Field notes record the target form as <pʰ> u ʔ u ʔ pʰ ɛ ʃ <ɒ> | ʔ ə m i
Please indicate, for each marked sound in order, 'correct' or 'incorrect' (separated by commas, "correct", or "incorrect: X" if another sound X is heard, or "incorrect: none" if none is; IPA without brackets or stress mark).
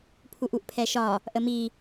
correct, correct